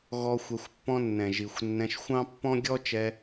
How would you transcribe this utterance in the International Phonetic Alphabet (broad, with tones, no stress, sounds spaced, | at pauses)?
ɣ ɔ˦ xʷ ɛ˧ xʷ pː ɔ̃˦ nː ɛ̃˨ ʒ i˨ xʷ nː ɛ̃˧ ʃ xʷ ɑ̃˦ pː ɔ̃˦ ɡʲ ɔ˦ t͡ʃ ɛ˧